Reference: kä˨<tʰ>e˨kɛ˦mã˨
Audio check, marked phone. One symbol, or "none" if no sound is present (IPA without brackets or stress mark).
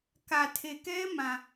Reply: tʰ